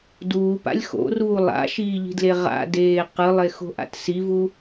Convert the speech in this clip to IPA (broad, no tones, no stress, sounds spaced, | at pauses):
d uː p a̰ lʲ x o̰ r uː lˠ a̰ ʃ iː ʎ i̤ d l e ʁ a̰ d eː q ɯ lˠ e x o̤ ʔ a̰ t s i v u